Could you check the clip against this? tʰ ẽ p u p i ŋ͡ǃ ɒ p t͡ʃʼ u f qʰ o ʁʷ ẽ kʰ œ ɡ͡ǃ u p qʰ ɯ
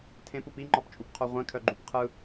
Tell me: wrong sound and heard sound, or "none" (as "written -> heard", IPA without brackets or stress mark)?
f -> p